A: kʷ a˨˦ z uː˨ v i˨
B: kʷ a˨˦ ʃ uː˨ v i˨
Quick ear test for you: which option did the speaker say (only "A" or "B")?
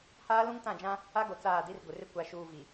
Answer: B